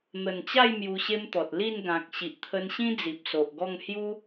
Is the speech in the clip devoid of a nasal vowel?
no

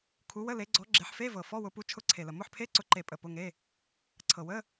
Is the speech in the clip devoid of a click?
no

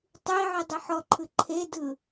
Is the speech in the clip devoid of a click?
no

